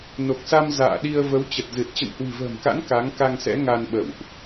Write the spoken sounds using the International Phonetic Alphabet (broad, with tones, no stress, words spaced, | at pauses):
no˨˩k̚sa˧m za̰ː˧˨ɗi˧ə̯ və˨˦wt͡ɕə˨˩t̚zɨ˨˩t̚ t͡ɕə̰˧˨nhwi̤˨˩və̤ː˨˩mka̰˧˥n ka˨˦ŋka˧ŋsɛ̰˧˥ ŋa˧nɓə̰˧˨wʔ